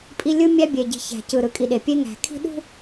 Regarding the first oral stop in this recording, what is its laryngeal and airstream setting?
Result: ejective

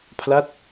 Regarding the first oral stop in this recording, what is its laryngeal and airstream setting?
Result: aspirated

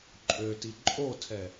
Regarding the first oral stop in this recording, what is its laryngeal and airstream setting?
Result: click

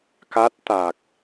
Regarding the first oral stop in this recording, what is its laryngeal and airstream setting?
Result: plain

